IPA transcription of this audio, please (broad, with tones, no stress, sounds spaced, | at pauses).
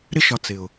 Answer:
ɾ ɪ˧ ʃ ɒ˨ t͡s ɪ˨ ʊ̯